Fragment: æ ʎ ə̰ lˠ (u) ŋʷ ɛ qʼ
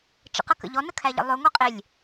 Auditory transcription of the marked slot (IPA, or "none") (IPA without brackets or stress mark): ø